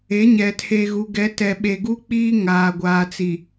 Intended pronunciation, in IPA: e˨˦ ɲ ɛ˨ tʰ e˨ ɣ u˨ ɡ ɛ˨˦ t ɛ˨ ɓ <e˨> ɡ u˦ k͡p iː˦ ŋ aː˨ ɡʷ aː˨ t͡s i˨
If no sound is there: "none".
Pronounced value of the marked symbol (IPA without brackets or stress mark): e˨